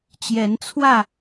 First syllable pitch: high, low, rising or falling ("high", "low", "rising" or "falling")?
rising